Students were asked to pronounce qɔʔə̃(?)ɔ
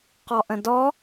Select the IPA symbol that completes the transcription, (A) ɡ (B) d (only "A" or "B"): B